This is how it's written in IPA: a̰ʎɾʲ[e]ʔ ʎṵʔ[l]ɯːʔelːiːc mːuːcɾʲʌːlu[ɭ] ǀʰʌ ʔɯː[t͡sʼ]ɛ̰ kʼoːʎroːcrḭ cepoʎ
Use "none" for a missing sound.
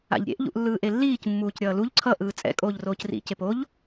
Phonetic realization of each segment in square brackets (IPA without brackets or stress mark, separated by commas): ḛ, lː, ʎ, t͡sʼ